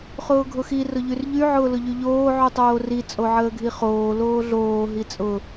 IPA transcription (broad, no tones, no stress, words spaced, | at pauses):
χʊːɡʱʊxi rʊʎyrʎy ʕʊːlʊʎyʎoː ʕytˤoːri t͡sʼoʕəːɡʱiχoː loːɮoː ɦit͡sʼʊ